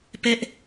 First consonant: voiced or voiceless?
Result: voiceless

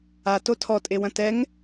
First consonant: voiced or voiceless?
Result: voiceless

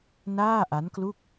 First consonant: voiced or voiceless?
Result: voiced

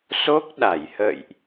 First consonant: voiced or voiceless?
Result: voiceless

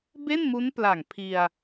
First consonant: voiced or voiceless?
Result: voiced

